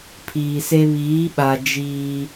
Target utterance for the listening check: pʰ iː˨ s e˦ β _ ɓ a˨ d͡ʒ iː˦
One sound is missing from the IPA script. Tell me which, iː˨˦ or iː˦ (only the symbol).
iː˨˦